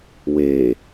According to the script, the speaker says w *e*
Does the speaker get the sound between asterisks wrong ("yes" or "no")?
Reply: no